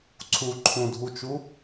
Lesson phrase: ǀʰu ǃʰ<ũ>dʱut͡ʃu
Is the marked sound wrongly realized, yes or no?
no